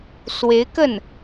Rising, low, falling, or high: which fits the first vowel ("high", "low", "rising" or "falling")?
rising